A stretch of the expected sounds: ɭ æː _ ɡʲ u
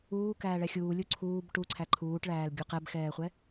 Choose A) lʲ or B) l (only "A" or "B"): B